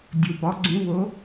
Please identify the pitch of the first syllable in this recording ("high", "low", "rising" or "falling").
low